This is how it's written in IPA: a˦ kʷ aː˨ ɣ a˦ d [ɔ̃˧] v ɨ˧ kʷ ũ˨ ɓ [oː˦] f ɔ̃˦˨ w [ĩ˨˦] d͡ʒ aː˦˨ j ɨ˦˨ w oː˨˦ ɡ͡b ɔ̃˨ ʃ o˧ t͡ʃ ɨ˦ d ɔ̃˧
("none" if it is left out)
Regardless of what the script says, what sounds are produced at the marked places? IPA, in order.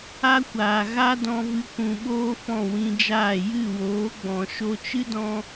ɔ̃˧, oː˦, ĩ˧

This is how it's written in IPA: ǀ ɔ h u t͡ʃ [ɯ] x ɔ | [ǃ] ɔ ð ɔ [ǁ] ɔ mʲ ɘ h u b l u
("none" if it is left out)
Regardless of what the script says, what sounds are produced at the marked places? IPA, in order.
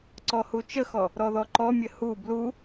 ə, ɾ, ǃ

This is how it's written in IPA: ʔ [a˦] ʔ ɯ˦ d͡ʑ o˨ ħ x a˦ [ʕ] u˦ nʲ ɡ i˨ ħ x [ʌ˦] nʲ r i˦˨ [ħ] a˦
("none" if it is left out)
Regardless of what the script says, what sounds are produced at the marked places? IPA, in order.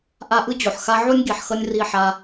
a˦, ʕ, ʌ˦, ħ

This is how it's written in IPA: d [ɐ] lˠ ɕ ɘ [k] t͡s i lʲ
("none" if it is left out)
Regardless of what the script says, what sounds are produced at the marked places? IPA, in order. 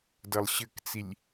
ɐ, k

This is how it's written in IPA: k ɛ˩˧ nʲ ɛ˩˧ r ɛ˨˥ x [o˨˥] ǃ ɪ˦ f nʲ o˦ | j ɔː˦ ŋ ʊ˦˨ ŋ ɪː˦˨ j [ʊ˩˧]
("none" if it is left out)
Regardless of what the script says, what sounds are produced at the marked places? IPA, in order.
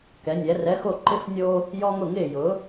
o˦˨, ʊ˩˧

